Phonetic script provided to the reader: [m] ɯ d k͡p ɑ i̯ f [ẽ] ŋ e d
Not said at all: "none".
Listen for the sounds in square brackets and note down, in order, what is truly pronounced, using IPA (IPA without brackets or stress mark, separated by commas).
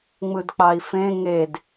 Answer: ŋ͡m, ẽ